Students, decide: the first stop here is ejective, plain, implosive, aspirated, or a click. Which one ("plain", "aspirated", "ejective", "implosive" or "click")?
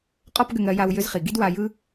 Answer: ejective